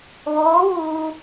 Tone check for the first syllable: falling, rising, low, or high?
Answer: rising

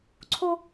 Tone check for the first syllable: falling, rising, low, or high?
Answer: high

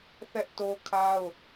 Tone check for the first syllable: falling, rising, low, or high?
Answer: high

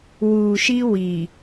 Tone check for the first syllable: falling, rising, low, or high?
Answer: low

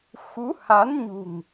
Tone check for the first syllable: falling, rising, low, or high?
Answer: rising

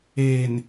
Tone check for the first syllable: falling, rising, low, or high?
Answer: low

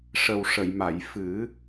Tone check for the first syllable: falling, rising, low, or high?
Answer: low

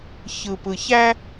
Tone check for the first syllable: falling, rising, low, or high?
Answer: low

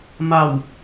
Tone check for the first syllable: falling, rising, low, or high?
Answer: low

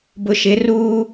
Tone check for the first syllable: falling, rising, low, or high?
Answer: low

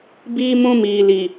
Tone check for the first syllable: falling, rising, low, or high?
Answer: high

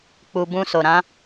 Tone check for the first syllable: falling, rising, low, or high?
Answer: low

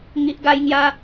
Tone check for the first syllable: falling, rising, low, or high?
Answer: low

